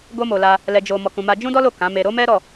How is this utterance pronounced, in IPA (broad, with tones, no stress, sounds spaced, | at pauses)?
ɡ o˦ m o˧ l a˧ | l ɛ˧ d͡ʒ o˧ m ɔ˧ k ũ˧ m a˦ d͡ʒ ũ˦ d ɔ˦ l o˦˨ k ã˨˦ m e˧ ɾ o˦ m ɛ˦ ɾ ɔ˦˨